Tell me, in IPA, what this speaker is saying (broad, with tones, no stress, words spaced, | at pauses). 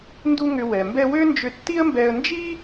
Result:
ndu˥ŋʏ˧ wɛ˩ mbɛ˧ wø˥nd͡ʒʏ˧ tːi˥ə̯mbɛ˧ə̯ nd͡ʒi˥